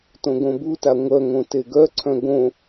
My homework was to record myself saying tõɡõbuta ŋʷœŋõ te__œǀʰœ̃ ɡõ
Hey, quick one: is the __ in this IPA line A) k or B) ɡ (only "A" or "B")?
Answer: B